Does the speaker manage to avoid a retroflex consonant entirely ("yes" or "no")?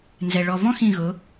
no